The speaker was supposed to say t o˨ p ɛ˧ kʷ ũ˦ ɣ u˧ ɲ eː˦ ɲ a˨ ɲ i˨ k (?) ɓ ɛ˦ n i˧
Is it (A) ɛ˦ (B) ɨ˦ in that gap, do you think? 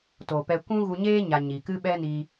B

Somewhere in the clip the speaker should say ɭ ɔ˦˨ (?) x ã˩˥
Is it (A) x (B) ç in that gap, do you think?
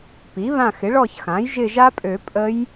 B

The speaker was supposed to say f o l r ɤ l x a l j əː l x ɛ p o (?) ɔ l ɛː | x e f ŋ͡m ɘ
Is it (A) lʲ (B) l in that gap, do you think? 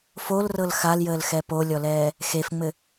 A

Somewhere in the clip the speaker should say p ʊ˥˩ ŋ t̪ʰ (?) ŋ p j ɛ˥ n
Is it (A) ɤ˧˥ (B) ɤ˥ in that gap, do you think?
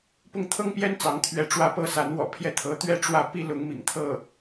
B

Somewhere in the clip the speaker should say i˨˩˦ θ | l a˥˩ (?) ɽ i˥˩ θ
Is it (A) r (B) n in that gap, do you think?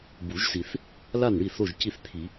B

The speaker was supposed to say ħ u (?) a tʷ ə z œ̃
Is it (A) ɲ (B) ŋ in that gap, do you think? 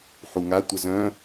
B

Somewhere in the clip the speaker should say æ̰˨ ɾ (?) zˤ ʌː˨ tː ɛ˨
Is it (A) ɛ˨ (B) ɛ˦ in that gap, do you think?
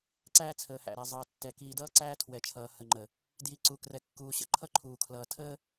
A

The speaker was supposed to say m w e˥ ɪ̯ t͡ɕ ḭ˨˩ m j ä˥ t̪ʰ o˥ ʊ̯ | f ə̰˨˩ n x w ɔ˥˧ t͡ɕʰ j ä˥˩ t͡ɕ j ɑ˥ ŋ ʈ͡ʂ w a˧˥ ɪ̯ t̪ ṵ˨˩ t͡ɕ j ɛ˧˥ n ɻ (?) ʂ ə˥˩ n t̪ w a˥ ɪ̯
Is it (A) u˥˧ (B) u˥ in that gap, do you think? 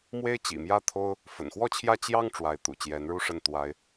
B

